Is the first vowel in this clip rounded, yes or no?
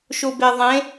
yes